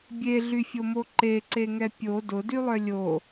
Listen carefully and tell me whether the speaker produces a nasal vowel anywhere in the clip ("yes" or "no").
no